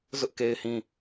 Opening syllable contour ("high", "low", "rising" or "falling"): high